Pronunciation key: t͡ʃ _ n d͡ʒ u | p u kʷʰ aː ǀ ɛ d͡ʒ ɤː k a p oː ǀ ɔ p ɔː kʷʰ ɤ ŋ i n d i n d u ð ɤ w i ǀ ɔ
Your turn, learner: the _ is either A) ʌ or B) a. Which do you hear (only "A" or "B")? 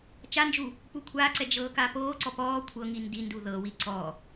B